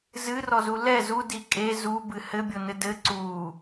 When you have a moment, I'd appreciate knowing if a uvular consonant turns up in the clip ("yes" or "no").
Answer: no